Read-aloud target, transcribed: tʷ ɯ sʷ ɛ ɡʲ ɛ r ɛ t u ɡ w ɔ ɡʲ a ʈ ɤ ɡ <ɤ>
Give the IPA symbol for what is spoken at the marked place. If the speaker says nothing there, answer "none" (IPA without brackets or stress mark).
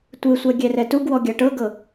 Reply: ɤ